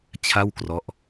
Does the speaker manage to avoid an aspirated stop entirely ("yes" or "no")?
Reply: no